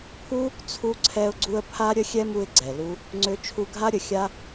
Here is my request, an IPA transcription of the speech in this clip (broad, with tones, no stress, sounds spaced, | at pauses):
pʰ u˦ | t͡sʰ u˦ ǀʰ ɛ˦ ʊ̯ ɡ͡ǀ u˦ ə̯ pʰ a˦ ɾʲ ə˦ xʲ ɛ˦ m u˧ ɪ̯ ɡ͡ǀ ɛ˨ l u˦ | ŋ͡ǀ ø˧ t͡ʃʰ u˧ ɡʱ a˦ ɾʲ ə˨ xʲ a˦